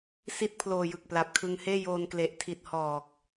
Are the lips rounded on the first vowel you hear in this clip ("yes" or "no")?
no